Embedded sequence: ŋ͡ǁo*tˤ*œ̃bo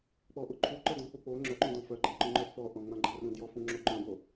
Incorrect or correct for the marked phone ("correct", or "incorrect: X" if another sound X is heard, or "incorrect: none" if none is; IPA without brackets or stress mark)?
incorrect: ǃ